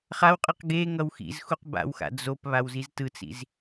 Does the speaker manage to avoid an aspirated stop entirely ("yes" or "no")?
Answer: yes